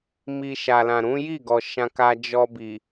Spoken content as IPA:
m i˧ ʃ a˨ l ã˨ ɾ ũ˨˦ j i˦˨ ɡ ɔ˨ ʃ ã˧ k a˧ d͡ʒ ɔ˧ b i˨

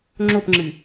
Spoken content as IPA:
ŋ͡ǁ o p ŋ͡ǁ ɨ

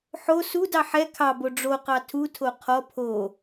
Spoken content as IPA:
ħ o s u d ɑ ħ ɛ kʰ ɑ b o ɖ͡ʐ o q ɑ tʰ u tʰ o qʰ ɔ pʰ o

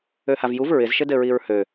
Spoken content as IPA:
ø h a v j u v ɹ ɪ z ʃ ɘ d ɘ ɹ i ɹ h ø

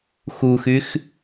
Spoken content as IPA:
x u x y x

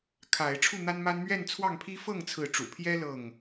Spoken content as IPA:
kʰ a˨˦ ɪ̯ ʈ͡ʂʰ u˥˨ n̪ a˦ n m a˦ n m ɥ ɛ˥˨ n t͡sʰ w ɑ˥˨ ŋ pʰ i˦ f ɤ˥˨ ŋ t͡sʰ ɹ̩˨˦ ʈ͡ʂ ṵ˨˩ pʰ j ɛ˦ l ɤ˥˨ ŋ

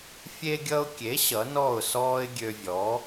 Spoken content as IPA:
fʲ e˧ ɡʲ ʌ˧ ʊ̯ kʲ e˩˥ ɕ ʌ˩˥ n ɔ˥˩ ʊ̯ s ɔː˥ ɪ̯ ɡʲ ø˧ vʲ ɔː˩˥

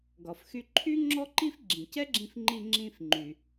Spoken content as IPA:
ɡ ɒ˩ f x y˧ ǃʰ y˥ ŋ͡ǁ ɔ˥ ǃ i˥ f ɡ͡ǁ ĩ˩ c ɛ˥ ɡ͡ǁ ĩ˧ f ŋ͡ǃ i˧ ŋ͡ǁ ĩ˧ f ŋ͡ǃ y˩

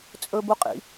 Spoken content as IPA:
t͡sʼ ɵ b u qʼ ḭ

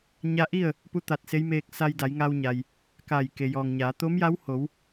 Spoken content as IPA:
ɲ a˧ ʔ i˥˨ ə̯ | p u˧˥ t̪ a˧˩ t̚ s e˧˥ j m eː˧ k̚ s a˧ j d a˩˧ j ŋ a˧ w ɲ a˩ j | k a˧˩ j k e˩ j ɔː˩ ŋ ɲ aː˩˧ t̪ o˧˥ m j a˧˥ w h o˩˧ w

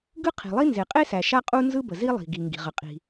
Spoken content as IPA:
ɡ ɯ˥ qʰ i̤˩ lˠ i˥ n z e˩ qʼ e˥ s æ˩ ʃ a˥ qʼ u˥ n z ɯ˥ b ə˩ z i˥ lˠ i̤˩ ɡ i˩ ŋ ɡ i̤˩ ʁ ə˩ qʼ i̤˩

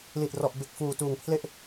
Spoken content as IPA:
l iː˨˩ t̚ r ɔ˨˩ ʔ b e˨˩ k̚ f uː˨˩ t uː˨˩ ŋ pʰ l e˦˥ ʔ

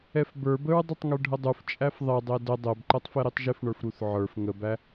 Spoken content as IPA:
ɛ f b ə˞ b ə ɹ dˤ u tˤ ŋ ə˞ ɖʱ ə dˤ u f t͡ʃʼ æ f ðˤ ɛ dˤ ɛ d ə dˤ ɛ b ǃ ɛ tˤ f ɛ ɾ i tˤ ʒ ɪ f ɳ ə˞ f ɾ u θ ʕ ə˞ f ŋ ə b æ

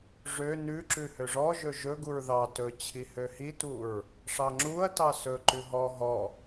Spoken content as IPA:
ʐ ø n ʉ ǁ ʉ h ø ʐ ɔ ʒ ɵ ʒ ɵ ɡ u ɹ ð ɑ t ɵ t͡ɕʰ i h ø h i t u ɹ | ʂ ɑ ŋ͡ǁ u ɐ̯ t ɑ s ɵ ǃ ʉ ɦ ɔ ɦ ɔ

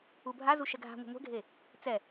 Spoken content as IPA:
u bʱ a z u ʃ ɛ ɡʱ a̤ ŋʷ a̤ ŋʷ ɛ̤ ɡʱ e | t͡s ɛ

